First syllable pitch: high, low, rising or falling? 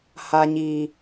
high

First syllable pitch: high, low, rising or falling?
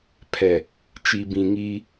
low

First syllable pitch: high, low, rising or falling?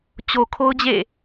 low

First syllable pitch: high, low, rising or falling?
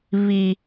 high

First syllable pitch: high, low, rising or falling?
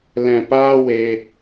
low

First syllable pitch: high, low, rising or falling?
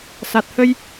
low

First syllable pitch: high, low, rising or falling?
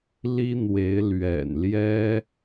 high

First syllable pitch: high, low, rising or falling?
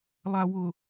low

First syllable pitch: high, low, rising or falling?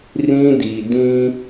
high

